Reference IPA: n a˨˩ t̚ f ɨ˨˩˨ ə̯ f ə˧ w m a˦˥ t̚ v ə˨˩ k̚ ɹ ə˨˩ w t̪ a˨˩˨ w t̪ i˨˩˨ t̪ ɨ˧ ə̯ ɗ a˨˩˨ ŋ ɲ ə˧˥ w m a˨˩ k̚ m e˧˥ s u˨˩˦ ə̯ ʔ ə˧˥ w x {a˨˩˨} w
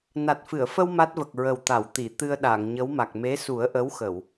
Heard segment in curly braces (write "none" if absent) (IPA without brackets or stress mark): ə˨˩˨